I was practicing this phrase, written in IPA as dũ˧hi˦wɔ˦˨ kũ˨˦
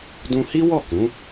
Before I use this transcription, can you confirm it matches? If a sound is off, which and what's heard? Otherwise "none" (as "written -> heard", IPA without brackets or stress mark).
none